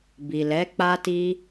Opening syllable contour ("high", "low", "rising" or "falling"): low